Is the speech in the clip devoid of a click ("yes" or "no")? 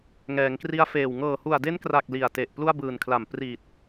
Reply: yes